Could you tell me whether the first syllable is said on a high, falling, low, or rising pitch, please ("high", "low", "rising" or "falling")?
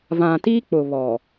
low